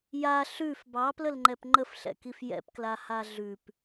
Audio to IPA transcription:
ja ɬʉf bɑpləlŋ͡ǃɛp ŋ͡ǃəfɬɛ̰kif jɛ̰pkla haɮʉp

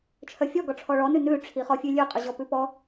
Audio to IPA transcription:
t͡ʃʰœfʲɔ ɡɔʈ͡ʂʰɔɭɔ nʉnʉ ʈ͡ʂʰiχɔfʲʉlʲʉ qʼʉʑɔpʉpɔ

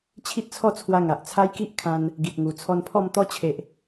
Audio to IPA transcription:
t͡ɕʰi˦t̚t͡sʰɔ˥˧t͡sʰwa˧ ŋa˨ʔt͡sʰa˦jki˦ʔkʰã˧n | ɡi˨t̚ŋu˨˩ t͡sʰɔ˧npʰɔ˥˧m t̪ɔ˦t͡ɕʰe˨ʔ

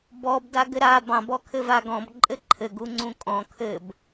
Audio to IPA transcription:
bɔb daɡɘɾa bɑ̃ bɔkʰɘvaɡɔ̃b ǃʼɘǃʰɘ ɡuŋ͡ǀũkʼɔ̃ kʰɘb

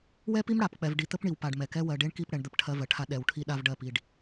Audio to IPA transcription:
wɛ˦pi˦m ɽa˨pk͡pɛ˨v ɖi˨t̪ə˦pɳi˨wpa˨ɖ mɛ˨kɛ˦ wɜ˨ɖe˦ɳki˦˨pɽɛ˨ɳ d̪ə˦˨pʈʰɜ˦vɜ˨ʈʰa˦ ɗɛ˨wʈʰi˦ɗa˦vɖɜ˦˨ pi˨ɖ

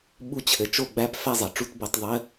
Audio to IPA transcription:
ɓu˥˨t͡ɕʰɘ˩˥ t͡ʃo˥˨ɡ͡bæ˥˨p fæ˥˨zˤɤ˩˥ʈ͡ʂu˧˥˧t bo˩˥tˤðˤɘ˧˥˧

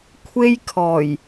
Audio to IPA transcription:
kʷʰe˥jkʰɔː˨˩j

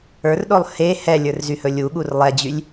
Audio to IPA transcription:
ə˞rɗolˠ he hɛlʲə˞rzyhɵ lʲuɠur lˠɛd͡ʑylʲ

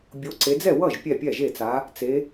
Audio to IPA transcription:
bʲo˧˥ǀe˧˥ d͡zɛ˥˩wʌ˥˩ʒ pʲɛ˥˩pʲɛ˥˩ʒe˥˩t͡sa˧˥ | t͡se˧˥

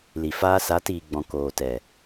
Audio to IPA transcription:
li˨ faː˦ sa˨˦tiː˨ɡ͡bɔ̃˨ koː˨tɛ˨

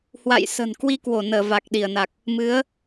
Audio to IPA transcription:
hwa̰˧˨jsə̤˨˩n kwi˧kwo˧˩nəː˧˩ va˨˩k̚ɗi˧˩ə̯na˨˩k̚ | mɨ˨˦ə̯

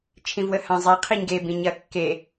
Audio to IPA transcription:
t͡ʃʰĩvwəhã zˤe qʰiɲɡe bĩɲɐ kːe

